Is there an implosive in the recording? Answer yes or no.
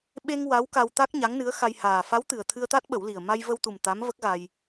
yes